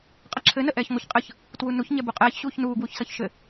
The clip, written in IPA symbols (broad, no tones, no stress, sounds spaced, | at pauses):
qʼ ʌ ǁʰ ɘ n ə ʔ ɛː ç ŋʷ ə ç qʼ ə ç | t w u n u ç ɲ ɛ b u qʼ ɛː ç ɕ uː ç n uː ɡ w u ç s ʌ ç ʃ ɘ